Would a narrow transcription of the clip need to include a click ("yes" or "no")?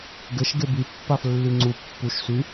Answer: yes